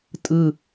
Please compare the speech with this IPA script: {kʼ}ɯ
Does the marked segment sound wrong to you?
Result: yes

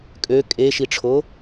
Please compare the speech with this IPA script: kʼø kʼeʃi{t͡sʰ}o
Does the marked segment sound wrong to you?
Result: yes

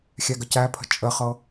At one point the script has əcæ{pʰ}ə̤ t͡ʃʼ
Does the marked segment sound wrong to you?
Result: no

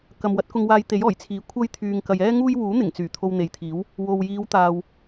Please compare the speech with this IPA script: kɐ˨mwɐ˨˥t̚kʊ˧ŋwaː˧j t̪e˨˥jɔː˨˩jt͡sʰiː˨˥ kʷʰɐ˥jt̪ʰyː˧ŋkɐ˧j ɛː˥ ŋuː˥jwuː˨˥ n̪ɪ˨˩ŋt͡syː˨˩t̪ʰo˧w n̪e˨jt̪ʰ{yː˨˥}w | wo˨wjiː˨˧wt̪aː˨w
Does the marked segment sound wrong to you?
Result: yes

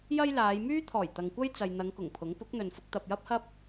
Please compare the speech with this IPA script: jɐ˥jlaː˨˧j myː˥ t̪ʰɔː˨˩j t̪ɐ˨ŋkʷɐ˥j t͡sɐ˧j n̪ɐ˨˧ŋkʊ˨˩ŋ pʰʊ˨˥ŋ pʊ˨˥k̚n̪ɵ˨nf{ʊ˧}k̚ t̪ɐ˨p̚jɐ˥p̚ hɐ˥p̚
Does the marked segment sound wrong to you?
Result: no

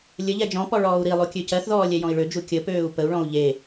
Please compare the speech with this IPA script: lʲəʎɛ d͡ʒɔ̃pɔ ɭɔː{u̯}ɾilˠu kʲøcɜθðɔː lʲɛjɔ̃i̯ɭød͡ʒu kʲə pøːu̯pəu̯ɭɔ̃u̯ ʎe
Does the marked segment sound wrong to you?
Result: no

